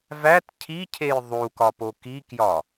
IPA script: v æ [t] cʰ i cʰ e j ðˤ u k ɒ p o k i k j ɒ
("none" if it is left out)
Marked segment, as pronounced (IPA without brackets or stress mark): t